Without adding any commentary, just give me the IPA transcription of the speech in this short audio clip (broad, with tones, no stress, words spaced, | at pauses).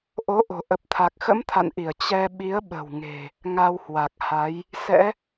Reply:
ʔo˨˦ʔo̤˨˩ ʔə˨˩p̚ t̪ʰa˨˩k̚xə̰˧˥mt̪ʰa̰˧˨nʔi˧˩ə̯ t͡ɕɛ˧ ɓi˨˦ə̯ɓə̤˨˩w ŋe̤˨˩ | ŋa˧whwa˨˩k̚ha˨˦j | sɛ̰˧˥